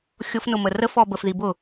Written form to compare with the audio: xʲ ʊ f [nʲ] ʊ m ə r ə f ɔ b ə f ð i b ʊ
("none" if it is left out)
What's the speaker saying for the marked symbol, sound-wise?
n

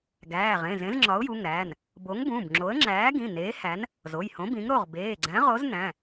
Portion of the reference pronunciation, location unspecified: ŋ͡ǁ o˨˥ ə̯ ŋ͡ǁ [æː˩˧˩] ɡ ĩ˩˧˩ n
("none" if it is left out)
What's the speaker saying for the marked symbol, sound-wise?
æː˨˥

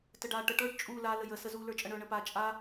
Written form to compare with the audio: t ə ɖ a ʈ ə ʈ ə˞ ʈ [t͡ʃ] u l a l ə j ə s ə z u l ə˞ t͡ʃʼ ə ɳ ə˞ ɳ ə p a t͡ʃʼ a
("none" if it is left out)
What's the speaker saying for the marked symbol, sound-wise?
t͡ʃʼ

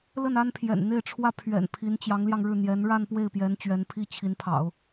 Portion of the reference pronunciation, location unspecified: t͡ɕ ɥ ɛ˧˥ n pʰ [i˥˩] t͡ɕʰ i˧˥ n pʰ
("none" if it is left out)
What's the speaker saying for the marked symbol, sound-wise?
i˥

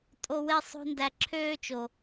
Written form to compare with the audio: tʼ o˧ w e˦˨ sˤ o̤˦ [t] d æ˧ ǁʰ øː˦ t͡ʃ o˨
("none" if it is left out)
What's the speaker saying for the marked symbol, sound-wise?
n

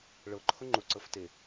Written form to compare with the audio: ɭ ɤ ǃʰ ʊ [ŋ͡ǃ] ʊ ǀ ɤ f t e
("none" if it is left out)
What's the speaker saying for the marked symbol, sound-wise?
ŋ͡ǃ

